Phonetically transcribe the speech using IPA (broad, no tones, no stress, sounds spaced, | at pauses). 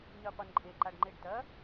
ɲ ɨ qʷ i n ǃʼ e ǃ a ɖ ŋ͡ǃ e ɖ t ɐ